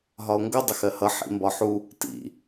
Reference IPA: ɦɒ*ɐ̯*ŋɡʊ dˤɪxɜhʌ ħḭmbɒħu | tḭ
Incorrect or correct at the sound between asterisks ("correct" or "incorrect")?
incorrect